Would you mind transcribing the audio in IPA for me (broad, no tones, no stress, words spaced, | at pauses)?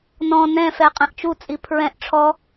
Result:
nɔ̃ nɛ̃fɛ qʼɛ̃ʔt͡ʃut͡sʼi pʰɹɛ̃ʔ ʈ͡ʂʰɔ